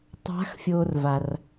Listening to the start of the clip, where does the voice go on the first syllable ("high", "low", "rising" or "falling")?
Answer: rising